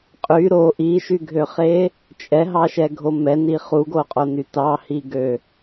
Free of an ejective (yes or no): no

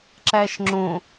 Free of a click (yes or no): no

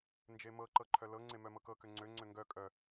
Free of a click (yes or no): no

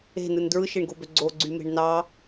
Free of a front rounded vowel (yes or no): no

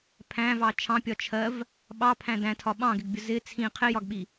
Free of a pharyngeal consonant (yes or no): yes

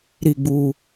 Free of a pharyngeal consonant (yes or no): yes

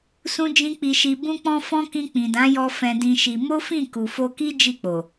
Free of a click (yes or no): yes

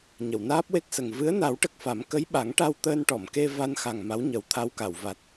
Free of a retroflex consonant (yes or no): no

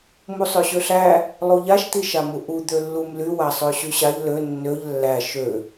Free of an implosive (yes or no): yes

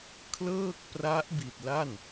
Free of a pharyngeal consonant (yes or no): yes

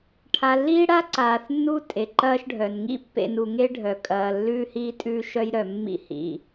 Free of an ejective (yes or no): no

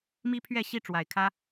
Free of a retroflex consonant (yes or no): no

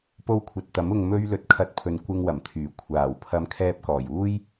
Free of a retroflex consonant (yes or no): yes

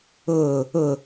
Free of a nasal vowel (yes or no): yes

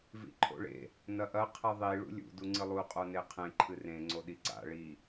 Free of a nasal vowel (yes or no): no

